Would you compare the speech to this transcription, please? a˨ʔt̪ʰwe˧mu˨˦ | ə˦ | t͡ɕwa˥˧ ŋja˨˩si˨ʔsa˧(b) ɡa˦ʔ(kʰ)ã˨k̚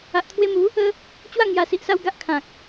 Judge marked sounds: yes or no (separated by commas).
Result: no, yes